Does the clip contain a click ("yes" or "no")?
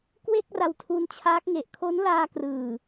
no